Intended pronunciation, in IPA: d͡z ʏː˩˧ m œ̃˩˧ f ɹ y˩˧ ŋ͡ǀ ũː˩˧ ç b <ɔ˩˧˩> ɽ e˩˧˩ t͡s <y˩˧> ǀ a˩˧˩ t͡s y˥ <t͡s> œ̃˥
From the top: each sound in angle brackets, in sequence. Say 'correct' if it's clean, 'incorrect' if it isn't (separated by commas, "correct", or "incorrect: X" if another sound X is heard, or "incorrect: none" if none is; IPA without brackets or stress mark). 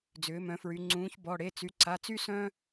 correct, correct, incorrect: s